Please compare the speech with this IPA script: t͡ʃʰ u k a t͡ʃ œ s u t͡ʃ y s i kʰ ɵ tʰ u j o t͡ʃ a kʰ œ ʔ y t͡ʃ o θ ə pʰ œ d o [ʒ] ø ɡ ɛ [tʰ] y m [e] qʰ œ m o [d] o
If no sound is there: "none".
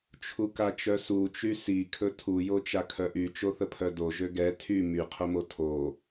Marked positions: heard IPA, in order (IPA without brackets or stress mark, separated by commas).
ʒ, tʰ, y, tʰ